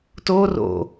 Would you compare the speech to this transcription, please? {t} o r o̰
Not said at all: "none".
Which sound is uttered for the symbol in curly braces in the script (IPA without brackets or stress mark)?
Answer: t